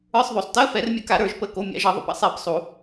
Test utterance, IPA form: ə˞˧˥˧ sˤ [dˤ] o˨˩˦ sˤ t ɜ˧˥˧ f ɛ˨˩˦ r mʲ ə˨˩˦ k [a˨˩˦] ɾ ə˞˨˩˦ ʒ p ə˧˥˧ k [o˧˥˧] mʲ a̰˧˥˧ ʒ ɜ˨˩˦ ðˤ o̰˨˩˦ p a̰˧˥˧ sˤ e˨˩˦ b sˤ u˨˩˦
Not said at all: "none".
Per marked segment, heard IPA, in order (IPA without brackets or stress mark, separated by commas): ð, a˨˩˦, o˧˥˧